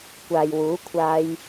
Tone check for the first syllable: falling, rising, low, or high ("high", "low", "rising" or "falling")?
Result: low